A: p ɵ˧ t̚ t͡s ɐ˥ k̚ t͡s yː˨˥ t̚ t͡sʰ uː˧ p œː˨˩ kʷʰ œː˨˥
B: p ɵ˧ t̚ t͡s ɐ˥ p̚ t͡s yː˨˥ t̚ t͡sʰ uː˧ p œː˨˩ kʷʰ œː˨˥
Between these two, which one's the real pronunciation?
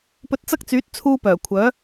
A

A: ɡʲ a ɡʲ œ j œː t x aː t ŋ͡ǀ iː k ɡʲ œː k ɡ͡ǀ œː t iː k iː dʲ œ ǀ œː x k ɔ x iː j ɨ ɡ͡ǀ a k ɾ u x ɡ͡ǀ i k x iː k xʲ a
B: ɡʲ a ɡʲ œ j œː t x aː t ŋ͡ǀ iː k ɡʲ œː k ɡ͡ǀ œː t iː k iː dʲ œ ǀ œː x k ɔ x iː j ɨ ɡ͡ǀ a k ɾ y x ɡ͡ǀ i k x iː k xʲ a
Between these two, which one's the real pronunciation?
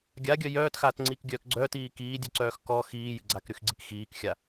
B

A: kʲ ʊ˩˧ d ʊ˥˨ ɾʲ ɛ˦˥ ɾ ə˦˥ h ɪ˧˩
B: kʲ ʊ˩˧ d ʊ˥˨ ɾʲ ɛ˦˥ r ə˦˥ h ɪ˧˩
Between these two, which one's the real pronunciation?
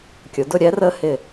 B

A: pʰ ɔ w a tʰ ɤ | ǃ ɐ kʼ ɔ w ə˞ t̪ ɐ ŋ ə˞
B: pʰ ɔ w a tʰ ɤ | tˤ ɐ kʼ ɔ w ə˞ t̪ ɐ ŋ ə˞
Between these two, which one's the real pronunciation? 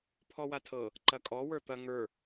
A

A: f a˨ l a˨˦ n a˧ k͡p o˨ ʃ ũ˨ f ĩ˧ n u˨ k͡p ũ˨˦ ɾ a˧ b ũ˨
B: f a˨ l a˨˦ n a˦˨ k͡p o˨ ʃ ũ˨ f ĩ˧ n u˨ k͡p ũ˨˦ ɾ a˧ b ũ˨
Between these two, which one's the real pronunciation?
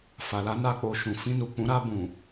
A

